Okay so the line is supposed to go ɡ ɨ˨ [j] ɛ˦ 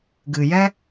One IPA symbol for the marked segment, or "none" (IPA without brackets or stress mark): j